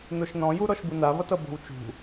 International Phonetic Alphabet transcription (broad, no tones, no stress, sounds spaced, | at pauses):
n o ʃ n ɔ̃ j u ɾ ɔ ʃ b u n a β ʌ t ʌ b o̤ w t͡ʃ ṳ